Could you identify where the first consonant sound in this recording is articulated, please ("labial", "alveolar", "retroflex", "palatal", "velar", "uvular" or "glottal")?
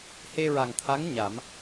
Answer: glottal